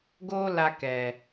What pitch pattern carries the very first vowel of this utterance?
high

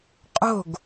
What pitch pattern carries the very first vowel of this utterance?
falling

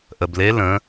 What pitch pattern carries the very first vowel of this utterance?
low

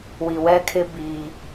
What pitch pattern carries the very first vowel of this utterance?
low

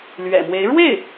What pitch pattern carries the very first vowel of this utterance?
low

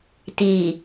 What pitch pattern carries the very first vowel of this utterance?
low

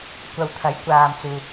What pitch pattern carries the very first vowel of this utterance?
low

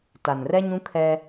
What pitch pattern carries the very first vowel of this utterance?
low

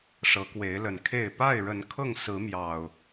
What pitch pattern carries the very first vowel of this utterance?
rising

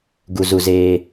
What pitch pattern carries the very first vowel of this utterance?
low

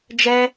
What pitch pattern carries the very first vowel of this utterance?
high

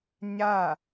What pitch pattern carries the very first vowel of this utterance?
falling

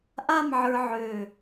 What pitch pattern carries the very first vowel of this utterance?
falling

